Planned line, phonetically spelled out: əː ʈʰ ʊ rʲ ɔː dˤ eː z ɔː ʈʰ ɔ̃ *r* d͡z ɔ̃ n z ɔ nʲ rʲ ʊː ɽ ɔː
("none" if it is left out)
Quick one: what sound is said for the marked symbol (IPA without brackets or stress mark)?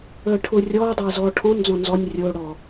n